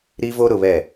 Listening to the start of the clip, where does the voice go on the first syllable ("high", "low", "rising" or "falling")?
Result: high